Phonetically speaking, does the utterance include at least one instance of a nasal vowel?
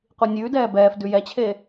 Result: no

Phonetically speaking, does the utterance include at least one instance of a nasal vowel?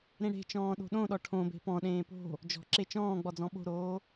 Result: yes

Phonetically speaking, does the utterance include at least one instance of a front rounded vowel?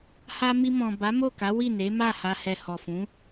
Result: no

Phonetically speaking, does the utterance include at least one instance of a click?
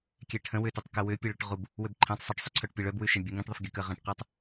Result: yes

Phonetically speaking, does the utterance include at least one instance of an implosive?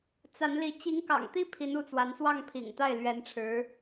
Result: no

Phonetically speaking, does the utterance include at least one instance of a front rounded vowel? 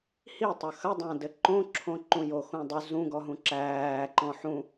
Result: yes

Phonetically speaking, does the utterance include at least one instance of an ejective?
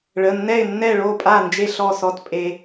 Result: yes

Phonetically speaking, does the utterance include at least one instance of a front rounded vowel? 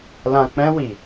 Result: no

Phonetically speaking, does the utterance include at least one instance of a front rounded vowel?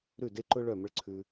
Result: yes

